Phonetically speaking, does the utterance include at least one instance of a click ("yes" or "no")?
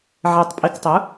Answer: no